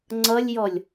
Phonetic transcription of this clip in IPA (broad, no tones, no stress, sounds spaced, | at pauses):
ŋ͡ǀ ʌ lʲ j ɔ lʲ